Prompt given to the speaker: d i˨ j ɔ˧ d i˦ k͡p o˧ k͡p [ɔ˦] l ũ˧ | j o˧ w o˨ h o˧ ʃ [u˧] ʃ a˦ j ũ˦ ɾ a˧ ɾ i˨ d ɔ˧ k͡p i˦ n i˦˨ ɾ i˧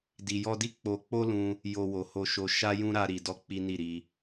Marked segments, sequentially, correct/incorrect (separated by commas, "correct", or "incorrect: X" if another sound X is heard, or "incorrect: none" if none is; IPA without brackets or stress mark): incorrect: o˦, incorrect: o˧